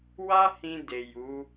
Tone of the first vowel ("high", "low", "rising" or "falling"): high